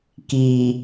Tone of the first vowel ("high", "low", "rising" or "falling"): low